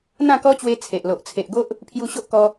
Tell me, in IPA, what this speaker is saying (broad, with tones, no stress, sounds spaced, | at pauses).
n̪ ã˥˧ k ɔ˦ t͡ɕ w e˧ t͡sʰ e˨ ʔ l o˨ ʔ t͡sʰ e˨ ʔ ɡ o˦ ʔ | pʰ j u˧ ɕ o˦ ʔ k ɔ˧